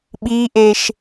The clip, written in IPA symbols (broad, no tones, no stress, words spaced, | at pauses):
ɓiʔeʃ